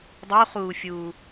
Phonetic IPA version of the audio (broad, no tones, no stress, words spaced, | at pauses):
dˤuχuːfʲuː